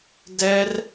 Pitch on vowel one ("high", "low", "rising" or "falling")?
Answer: high